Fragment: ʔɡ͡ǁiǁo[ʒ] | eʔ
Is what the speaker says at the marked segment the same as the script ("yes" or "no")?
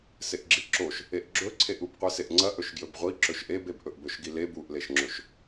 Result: no